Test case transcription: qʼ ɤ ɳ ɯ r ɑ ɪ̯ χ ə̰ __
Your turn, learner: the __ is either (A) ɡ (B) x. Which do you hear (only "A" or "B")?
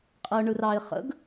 A